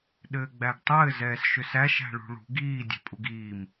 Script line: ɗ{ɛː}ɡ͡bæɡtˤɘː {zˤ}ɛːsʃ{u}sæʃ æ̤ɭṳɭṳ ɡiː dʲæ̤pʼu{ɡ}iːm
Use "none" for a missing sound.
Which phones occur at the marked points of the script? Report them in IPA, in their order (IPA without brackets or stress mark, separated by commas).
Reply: ɘː, z, ʏ, ɡ